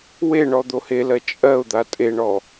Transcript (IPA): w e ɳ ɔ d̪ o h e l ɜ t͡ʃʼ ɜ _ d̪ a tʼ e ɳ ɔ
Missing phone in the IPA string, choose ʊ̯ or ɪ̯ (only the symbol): ʊ̯